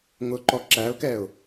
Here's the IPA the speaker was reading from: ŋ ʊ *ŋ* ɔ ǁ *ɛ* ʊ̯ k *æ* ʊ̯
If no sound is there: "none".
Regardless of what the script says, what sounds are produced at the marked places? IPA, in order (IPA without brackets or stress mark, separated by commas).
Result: ǃ, æ, ɛ